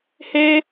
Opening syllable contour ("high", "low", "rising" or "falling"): high